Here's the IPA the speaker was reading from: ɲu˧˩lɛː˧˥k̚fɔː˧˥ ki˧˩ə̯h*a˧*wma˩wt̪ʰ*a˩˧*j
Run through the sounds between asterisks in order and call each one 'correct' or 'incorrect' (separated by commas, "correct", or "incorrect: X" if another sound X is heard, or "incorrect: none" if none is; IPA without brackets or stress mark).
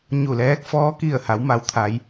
incorrect: a˩˧, correct